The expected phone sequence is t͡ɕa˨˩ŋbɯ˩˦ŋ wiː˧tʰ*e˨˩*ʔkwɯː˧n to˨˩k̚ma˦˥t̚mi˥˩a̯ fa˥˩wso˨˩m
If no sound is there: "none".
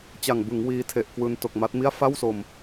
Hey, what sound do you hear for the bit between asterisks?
e˨˩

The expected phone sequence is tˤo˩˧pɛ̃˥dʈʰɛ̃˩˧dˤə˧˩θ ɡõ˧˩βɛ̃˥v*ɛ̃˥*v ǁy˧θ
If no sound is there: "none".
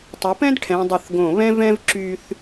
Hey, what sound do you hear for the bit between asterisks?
ɛ̃˥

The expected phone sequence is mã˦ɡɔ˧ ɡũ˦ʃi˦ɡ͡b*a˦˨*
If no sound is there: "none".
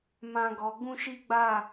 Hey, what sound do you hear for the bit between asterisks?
a˦˨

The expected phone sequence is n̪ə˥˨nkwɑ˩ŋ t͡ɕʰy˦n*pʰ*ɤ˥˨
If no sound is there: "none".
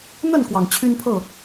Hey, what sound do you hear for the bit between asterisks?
pʰ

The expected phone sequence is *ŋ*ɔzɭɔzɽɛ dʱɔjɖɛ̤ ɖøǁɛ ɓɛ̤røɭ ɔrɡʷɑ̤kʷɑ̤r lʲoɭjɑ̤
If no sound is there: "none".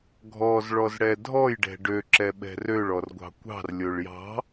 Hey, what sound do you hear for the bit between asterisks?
ɡʱ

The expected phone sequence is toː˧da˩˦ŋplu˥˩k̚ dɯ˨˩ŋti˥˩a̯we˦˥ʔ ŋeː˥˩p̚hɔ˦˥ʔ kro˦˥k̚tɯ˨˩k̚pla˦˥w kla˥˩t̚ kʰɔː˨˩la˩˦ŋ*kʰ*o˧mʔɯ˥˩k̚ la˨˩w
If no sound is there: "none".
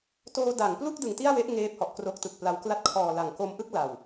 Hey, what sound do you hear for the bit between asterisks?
k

